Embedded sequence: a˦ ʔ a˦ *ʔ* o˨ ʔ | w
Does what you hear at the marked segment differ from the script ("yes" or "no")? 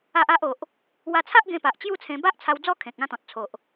no